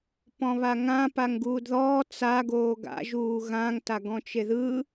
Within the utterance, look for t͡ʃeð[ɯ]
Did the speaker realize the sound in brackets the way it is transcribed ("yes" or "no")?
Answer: yes